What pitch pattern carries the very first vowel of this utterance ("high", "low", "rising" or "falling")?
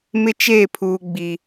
high